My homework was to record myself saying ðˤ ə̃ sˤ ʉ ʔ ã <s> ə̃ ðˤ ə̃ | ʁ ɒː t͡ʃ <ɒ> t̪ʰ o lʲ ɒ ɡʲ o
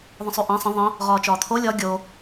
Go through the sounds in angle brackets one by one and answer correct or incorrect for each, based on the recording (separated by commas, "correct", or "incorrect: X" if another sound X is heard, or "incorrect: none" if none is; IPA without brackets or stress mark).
incorrect: sˤ, incorrect: ɒː